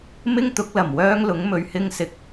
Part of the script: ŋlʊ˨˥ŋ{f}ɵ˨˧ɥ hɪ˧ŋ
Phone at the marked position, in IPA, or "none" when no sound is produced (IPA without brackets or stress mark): m